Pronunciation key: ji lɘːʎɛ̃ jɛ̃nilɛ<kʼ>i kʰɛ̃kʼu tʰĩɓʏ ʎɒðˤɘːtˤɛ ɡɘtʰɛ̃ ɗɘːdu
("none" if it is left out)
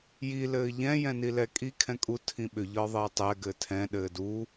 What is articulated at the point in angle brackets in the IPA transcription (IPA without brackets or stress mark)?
kʼ